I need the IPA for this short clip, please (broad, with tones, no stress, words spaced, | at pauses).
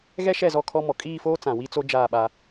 ɣɛ˦ʃɛ˦˨zɔ˦˨ kʰɔ˦mɔ˨ kʼiː˦˨foː˦ t͡sã˨wi˦t͡so˦ d͡ʒaː˦˨ɓa˦